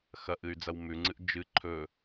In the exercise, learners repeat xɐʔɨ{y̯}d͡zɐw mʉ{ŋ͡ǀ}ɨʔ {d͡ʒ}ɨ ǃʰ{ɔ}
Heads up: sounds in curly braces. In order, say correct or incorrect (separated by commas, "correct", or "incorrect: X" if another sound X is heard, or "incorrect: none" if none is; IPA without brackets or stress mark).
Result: correct, correct, correct, incorrect: ɵ